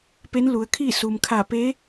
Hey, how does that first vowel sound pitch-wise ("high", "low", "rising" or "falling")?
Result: rising